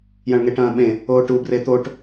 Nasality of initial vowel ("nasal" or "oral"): nasal